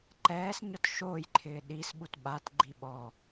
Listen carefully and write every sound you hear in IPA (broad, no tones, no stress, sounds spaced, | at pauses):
ǃ ɛː s ɲ ɔ t ʃ oː j ǃʰ ɪː ɗ i s ɓ u t ɓ a t ɡ͡ǃ i ɓ ɔ